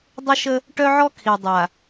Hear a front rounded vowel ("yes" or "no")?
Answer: yes